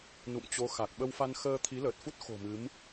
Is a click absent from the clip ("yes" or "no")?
yes